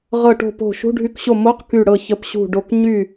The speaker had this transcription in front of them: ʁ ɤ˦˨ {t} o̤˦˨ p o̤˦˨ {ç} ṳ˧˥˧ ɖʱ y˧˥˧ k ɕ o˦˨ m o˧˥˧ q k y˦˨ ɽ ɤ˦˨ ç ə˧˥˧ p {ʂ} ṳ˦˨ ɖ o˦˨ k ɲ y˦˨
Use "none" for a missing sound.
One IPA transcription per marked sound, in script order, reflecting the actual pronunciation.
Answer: ʈ, ʃ, ɕ

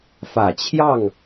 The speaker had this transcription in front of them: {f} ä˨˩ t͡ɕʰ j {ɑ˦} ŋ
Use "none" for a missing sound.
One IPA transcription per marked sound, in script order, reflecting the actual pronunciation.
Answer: f, ɑ˥˨

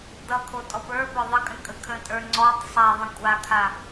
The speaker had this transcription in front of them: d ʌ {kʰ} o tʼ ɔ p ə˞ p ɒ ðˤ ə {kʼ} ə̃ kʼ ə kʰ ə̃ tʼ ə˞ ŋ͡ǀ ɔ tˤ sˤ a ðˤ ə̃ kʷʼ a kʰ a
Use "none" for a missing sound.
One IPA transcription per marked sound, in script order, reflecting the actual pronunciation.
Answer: kʰ, kʼ

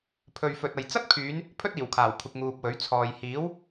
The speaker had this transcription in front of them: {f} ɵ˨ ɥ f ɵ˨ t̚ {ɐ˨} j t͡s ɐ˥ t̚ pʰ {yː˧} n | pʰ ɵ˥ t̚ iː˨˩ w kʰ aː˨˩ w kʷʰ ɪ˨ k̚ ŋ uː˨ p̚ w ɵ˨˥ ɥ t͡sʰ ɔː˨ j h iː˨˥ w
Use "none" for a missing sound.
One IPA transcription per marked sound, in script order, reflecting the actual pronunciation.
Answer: pʰ, ɐ˨, yː˨˧

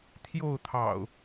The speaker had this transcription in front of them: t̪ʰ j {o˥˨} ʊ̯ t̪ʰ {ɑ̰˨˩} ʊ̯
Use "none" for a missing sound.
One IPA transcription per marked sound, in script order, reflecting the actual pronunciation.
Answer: o˥˨, ɑ̰˨˩

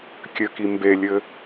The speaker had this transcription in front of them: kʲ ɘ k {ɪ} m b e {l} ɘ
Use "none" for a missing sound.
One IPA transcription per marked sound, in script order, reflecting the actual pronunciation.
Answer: i, lʲ

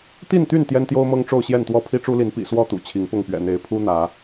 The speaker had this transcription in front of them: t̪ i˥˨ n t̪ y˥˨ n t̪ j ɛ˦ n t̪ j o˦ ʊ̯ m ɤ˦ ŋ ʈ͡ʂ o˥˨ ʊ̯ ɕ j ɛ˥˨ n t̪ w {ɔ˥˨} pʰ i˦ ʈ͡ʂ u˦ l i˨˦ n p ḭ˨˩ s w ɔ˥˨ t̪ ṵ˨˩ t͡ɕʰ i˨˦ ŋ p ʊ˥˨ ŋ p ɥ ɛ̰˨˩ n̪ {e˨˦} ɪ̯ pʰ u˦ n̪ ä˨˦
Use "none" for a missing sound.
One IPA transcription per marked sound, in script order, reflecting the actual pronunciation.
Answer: ɔ˥˨, e˨˦

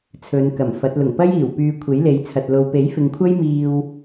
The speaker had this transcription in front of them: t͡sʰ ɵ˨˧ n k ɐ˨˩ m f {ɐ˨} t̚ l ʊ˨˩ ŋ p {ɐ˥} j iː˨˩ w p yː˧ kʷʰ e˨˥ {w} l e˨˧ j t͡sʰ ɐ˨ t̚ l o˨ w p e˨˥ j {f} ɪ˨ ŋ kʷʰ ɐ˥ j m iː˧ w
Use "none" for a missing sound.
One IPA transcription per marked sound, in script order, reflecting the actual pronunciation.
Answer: ɐ˨˥, ɐ˥, j, f

